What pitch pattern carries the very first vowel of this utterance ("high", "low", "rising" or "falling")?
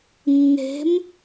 rising